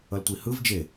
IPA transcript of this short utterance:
ʌltʷihɯv d͡ʒe

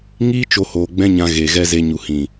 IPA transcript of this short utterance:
ŋiː˦ t͡ʃo˧hoː˨ɡ͡bɛ̃˦ɲã˧ ɣe˨ɣɛ˦ ze˧ɲu˨hĩ˨

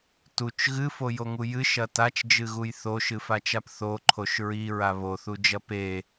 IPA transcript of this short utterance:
tut͡ʃ ɣɨfojoŋu jɨʃɐ tat͡ʃd͡ʒɨɣuj θoʃɨfat͡ʃap θoǃʰoʃ ɹiɹa βoθud͡ʒɐ pe

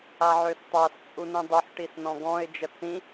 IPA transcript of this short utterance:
aʕøstˤas t͡sʼunĩdˤoħ ʈisnɔ̃ɡɔ̃ɪ̯ d͡ʒət͡sĩ

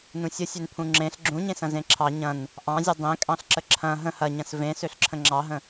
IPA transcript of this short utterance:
nũsʲə sʲønpʰũŋ͡ǁẽɬ ɡ͡ǁũɲẽsɐ̃ zẽǁʰɑ ɲɐ̃n | ʔɑ̃zʲɐ dˤẽkʼɑ̃ɬ ǁəǁʰɐ̃ ɦə̃ hɐ ɲɐ̃svẽ søɬǁʰə̃ŋ͡ǁɑɦə̃

